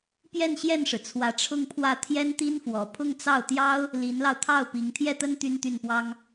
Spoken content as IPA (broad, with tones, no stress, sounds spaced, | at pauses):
p j ɛ˥˧ n ɕ j ɛ˥˩ n ʂ ɻ̩˩ t͡sʰ w ä˧˥ ʈ͡ʂʰ ʊ˥˧ ŋ pʰ w ä˥˩ t̪ʰ j ɛ˥ n t̪ i˥ n f w ɔ˨˩ pʰ ʊ˥˧ ŋ t͡s ɑ˥˩ ʊ̯ t̪ j ɑ˥ ʊ̯ | l i˧˥ n l ɑ˧ ʊ̯ t̪ʰ ɑ˥˩ ʊ̯ p i˧˥ ŋ t̪ʰ j ɛ˥˩ t̪ ə˥ n t̪ y˥ n t̪ y˥˩ n p w ɑ˥ ŋ